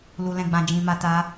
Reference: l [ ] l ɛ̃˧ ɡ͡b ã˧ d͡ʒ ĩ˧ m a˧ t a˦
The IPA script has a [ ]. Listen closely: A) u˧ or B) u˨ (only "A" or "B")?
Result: A